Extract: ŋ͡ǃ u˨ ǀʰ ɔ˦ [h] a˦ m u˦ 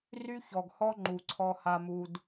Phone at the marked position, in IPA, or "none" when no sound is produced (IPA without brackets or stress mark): h